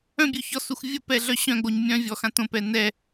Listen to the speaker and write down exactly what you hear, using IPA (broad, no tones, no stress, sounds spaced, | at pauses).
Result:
œ̃ bʲ ø ç ɔ s u x vʲ ə p ɛ ɮ œ ɕ œ̃ ɡ͡b o ɲ mʲ œ̃ vʲ ɔ x ã t õ p ɛ n ɛ